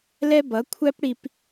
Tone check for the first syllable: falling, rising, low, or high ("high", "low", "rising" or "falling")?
high